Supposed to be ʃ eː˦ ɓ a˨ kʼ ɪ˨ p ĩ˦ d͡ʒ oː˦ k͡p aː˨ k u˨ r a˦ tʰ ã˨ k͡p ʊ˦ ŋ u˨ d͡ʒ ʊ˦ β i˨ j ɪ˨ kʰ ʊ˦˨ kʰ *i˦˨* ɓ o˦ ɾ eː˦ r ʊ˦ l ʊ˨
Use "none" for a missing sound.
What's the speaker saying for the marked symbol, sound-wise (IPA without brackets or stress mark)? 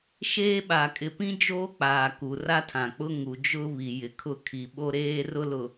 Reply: i˨